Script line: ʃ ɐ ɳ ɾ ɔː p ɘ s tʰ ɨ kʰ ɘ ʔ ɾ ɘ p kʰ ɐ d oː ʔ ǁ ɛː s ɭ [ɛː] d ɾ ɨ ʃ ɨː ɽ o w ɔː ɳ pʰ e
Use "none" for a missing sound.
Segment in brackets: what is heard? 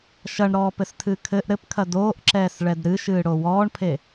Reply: ɛ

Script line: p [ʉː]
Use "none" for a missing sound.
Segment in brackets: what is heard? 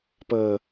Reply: əː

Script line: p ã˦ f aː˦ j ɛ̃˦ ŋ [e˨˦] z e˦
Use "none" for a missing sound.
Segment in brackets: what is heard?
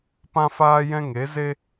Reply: e˨˦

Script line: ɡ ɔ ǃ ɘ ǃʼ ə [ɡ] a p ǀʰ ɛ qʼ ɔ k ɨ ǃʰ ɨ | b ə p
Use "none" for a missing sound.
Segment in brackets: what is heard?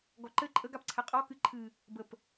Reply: ɡ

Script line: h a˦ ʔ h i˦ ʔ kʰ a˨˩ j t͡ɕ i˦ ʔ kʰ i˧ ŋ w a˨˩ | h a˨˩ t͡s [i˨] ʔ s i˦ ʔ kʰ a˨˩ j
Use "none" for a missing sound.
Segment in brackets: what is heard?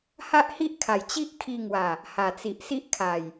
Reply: i˨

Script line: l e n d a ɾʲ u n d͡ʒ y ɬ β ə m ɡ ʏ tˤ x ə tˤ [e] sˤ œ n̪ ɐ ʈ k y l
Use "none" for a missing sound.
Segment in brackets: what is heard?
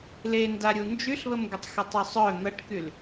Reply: y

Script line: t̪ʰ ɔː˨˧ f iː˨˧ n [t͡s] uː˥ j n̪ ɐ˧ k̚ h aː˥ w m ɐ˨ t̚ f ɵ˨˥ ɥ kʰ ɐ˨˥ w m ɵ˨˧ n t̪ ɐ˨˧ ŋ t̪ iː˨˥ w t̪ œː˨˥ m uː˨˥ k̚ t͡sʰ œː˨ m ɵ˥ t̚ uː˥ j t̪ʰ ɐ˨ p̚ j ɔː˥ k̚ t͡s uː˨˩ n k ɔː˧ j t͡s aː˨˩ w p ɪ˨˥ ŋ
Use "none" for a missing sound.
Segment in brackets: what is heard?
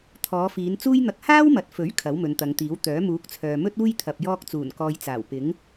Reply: t͡s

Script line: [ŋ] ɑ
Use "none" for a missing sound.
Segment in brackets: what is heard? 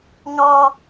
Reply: ŋ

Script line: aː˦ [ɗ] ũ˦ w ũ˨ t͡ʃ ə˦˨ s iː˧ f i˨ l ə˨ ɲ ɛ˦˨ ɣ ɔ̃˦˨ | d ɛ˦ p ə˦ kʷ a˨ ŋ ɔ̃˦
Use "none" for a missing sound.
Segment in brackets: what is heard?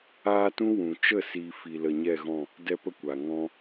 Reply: t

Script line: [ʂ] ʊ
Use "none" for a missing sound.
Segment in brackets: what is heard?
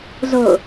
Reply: z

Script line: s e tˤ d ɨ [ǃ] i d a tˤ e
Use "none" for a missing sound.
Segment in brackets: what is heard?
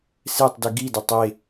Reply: ɡ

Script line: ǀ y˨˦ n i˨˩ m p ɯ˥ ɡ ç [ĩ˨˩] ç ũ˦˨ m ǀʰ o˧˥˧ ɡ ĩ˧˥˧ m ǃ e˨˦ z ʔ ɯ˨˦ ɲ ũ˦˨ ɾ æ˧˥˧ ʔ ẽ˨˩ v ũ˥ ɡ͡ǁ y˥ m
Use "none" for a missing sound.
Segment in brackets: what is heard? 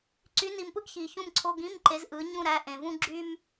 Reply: i˨˩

